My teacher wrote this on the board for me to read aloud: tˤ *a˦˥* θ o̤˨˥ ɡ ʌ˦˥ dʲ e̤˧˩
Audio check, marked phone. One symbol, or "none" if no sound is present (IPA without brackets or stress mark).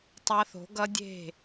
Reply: a˦˥